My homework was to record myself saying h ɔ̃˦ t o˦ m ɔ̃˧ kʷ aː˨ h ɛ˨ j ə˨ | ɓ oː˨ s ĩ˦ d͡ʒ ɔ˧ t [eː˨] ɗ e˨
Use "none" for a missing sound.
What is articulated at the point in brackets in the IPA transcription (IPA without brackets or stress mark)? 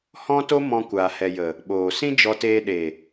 eː˧